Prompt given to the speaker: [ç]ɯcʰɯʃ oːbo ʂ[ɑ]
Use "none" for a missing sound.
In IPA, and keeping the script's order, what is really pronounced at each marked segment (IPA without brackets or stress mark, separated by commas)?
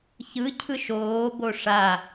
ç, a